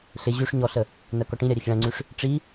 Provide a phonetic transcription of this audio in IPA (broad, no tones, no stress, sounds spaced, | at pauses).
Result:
ɬ ɪ ʑ ʉ ʂ ɲ ɔ ɬ ə | n ɜ k ɔ ʈ ĩ ɾʲ a ɾʲ ɜ ç ɭ ɛ̃ ŋ͡ǀ ʉ ʂ | ʈ͡ʂ i